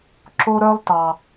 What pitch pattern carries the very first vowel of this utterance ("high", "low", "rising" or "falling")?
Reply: high